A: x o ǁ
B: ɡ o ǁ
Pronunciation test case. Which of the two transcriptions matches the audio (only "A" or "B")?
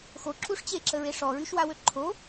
A